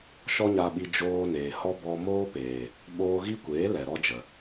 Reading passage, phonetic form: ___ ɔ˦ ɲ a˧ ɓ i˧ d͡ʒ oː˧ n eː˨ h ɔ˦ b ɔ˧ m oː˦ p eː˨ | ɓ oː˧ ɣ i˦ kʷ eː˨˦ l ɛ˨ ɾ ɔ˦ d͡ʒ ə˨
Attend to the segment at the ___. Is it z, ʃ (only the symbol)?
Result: ʃ